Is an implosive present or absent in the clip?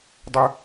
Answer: absent